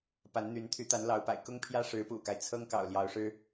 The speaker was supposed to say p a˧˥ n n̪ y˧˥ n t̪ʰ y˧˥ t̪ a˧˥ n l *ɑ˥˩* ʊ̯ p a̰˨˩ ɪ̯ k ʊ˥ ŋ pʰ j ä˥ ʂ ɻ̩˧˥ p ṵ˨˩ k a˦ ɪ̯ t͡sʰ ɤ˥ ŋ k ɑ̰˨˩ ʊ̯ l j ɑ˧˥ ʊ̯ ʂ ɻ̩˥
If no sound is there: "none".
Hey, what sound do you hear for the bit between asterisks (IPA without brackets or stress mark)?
ɑ˧˥